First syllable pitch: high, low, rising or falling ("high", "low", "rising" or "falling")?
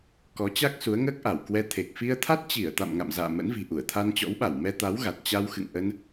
rising